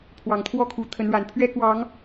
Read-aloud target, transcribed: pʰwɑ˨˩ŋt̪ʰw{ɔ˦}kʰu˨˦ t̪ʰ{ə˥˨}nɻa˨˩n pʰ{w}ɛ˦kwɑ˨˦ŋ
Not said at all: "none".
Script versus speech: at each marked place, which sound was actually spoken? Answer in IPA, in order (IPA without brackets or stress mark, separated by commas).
ɔ˥˨, ə˨˦, ɥ